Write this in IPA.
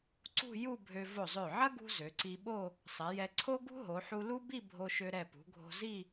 ǀ ṳ˥˧ j u˥˧ bʱ ø˧ v o˧˩ zˤ ø˧˩ ʕ ɐ˥ ɡ ṳ˥ z ø˩˧ ǀ i˧ ɓ o˥˧ | sˤ ɛ˩˧ j ɛ˧ ǀʰ o˥ ɡ ṳ˥ ɦ o˩˧ ħ u˧ l u˥ b i˥˧ bʱ o˧ ʃ ø˧ ɾ ɛ˧˩ p ṳ˩˧ ɡʱ o̤˧ z i˥˧

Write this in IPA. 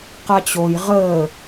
q a t͡ɕ o j ʁ əː

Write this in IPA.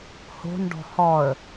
h o̤ n ɖ ɔ̤ h ɔ ə̯

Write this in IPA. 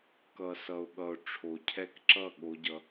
k ʌ˨ s ʌ˨ ʊ̯ ɠ ʌ˨ ʊ̯ ʈ͡ʂʰ o˨ cʰ ɛ˦ k ǁ ʌ˦˨ ɠ o˧ ɟ ʌ˧

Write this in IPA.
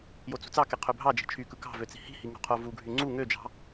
j o t͡s ṳ t͡s ɑ k e qʰ ø bʱ ɑ d͡ʒ i̤ t͡ʃʰ y k ɯ k ɑ̤ v ø t͡s i̤ h i̤ h i ŋ ṳ qʰ o v u ɡʱ y ŋ͡ǀ u ŋ ø d͡ʒ ɑ̤

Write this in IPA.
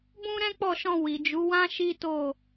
b ũ˦ ɾ ɛ̃˦ k͡p ɔ˦˨ ʃ ɔ̃˧ w i˨ d͡ʒ u˨˦ w ã˦ ʃ i˦ t o˦˨

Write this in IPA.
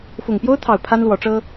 f ʊ˨˩ ŋ p j o˦ ʊ̯ t̪ʰ ɑ˨˩ ʊ̯ pʰ a˦ n l w ɔ˨˦ ʈ͡ʂ ɤ˦

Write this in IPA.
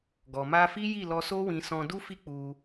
ɡ ɔ˨ m a˧ f i˦ j i˦˨ l ɔ˧ s o˦ w ĩ˧ s ɔ̃˧ d u˦ f i˦ k͡p u˧

